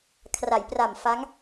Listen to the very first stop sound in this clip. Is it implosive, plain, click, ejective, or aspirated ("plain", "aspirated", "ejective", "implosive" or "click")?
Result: aspirated